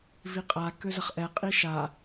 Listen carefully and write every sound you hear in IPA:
viqʼa køzɐχʔɛ qʼiʃa

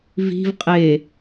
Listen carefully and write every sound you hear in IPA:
vi̤vqʼeː

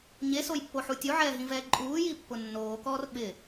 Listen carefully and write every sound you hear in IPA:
ɲesojpːoħu tʲuʕɛːɦĩvɛː ǃʼuːjipːʊ nːoːkɔːr ɓɪ

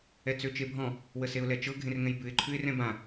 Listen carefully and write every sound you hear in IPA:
ɛt͡søt͡ʃebʱɔ̃ | wəseʊ̯lɛt͡ʃɤ ɡʱẽrŋɛ̃jbʉɪ̯ ǃʰʉɪ̯rɛ̃bã

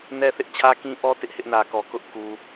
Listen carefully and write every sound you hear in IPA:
nɛ˦θɪ˦ʔ t͡ɕʰä˦kĩ˦ ʔɔ˦ tɪ˦ʔhɪ˦ʔnä˨kɔ˨ kʊ˦ʔku˨

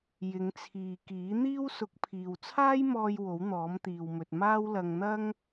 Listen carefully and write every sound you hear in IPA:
jɪ˨˧ŋt͡sʰiː˨ kiː˨˥n̪iː˥w sʊ˨˥k̚pʰiː˨wt͡sʰaː˥jmɔː˧j wo˨˥wn̪ɔː˨˥mt̪iː˨wmɵ˨t̚ maː˥wlɐ˧ŋ n̪ɐ˥ŋ

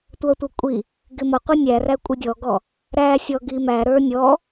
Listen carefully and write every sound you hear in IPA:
tʷʌtʷʌ kʷʼi | ɡɪmʌqʷi nʲæræ kʷʼɪdʲɔɡɔ | ɾæsʲɔ ɡimæ ɾə˞nʲɔ

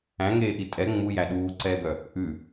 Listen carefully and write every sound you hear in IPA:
æ̃ŋeːʔi tʼɛ ŋ͡mujæ ɗuːǀɛːɡœ | ʔʉ

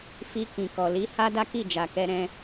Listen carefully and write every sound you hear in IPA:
fi˧kĩ˨ kɔ˨li˨˦ ha˦da˦ki˦˨ d͡ʒa˨kɛ˧ɾɛ̃˧

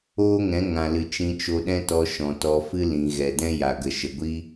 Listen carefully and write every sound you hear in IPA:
oː˦ŋɛ̃˨˦ ŋã˨lɨ˨ t͡ʃĩ˧t͡ʃo˧ɗɛ̃˦tɔ˧ ʃɔ̃˨tɔ˧ fɨ˦lĩ˨ ɣɛ˨dɛ̃˦ja˨ ɡə˨ʃə˨ɡʷi˦

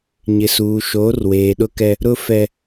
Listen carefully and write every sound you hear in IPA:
ɲɪ˨suː˨ ʃoː˨˦rweː˨ɗʊ˦kɛ˦ | ɾʊ˦fɛ˦

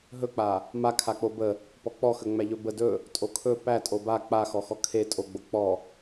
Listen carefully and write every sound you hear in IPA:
ɦɵk͡pa | makʰak͡po bə | pɔk͡pɔxəŋ͡mæ ʎɵbə dɵ | tʼokʰɵ pæ tʼoba k͡pa xɔxɔkʰe tʼoɡ͡bo k͡pɔ

